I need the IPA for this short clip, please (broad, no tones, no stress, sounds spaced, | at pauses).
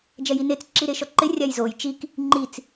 d͡ʒ ɛ j i n e t͡s ǁ i ɾ e ʃ ɔ ǃ ɪ rʲ a j z o j t͡ʃ i k | ŋ͡ǃ i t͡s